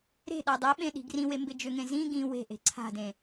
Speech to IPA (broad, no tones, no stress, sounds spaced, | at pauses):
ɾ e̤ ɗ a dˤ e ɓ ẽ ɗ i̤ ɡ r ĩ w e m b ɪ d͡ʒ ʏ ŋ ẽ z ĩ ɡ ĩ w e̤ ʔ e̤ ǀʰ a̤ d ẽ